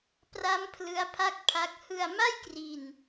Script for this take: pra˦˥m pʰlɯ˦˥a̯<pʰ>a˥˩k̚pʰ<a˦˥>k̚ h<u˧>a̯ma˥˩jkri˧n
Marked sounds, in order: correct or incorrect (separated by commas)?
correct, correct, incorrect